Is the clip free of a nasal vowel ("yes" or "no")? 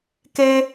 yes